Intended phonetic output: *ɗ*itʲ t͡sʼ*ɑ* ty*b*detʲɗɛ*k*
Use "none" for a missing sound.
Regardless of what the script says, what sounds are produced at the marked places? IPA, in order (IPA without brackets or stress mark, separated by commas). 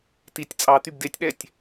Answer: t, ɑ, b, tʲ